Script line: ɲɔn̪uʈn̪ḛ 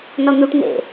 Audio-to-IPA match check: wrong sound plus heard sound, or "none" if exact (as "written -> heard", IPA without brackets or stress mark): ɲ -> n